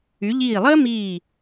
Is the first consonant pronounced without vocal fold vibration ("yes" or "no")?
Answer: no